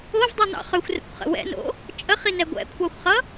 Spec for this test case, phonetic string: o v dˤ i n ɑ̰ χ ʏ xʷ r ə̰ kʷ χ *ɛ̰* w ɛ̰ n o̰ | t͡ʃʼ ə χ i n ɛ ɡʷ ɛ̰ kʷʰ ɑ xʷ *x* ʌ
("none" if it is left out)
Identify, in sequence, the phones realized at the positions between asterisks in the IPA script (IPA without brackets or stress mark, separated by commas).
ə̰, χ